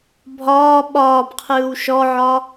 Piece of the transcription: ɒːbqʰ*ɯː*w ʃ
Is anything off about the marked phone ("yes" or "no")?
no